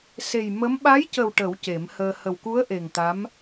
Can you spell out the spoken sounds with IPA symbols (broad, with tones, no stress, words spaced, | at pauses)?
se˨˩j mə˧˥m ɓa˧˥jcə˨˩w ʈə˨˩˦w ce˨˩˦mhəː˧ hə˨˩wku˧˥ə̯ ʔe˨˩ŋt̪a˧˥m